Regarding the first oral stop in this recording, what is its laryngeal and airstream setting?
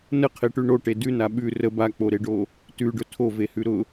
aspirated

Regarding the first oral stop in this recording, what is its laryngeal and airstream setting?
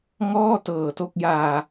plain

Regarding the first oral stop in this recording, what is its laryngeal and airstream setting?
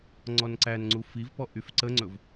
click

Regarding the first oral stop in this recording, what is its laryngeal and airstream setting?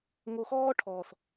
aspirated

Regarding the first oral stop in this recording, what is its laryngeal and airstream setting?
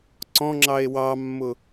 click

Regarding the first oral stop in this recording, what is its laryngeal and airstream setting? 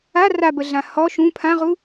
plain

